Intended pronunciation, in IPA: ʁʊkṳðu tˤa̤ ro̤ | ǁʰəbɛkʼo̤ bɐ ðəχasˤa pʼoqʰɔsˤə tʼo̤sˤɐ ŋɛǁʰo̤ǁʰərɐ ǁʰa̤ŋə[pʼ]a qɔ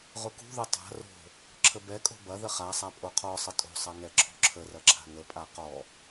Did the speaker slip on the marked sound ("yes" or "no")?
no